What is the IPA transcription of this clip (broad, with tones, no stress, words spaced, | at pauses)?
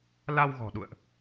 la˧wɣɔ̤˨˩ɗṵ˧˨ə̯ʔ